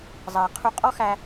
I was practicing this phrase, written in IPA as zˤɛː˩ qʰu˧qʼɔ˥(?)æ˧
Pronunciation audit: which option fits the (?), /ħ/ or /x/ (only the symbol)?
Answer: x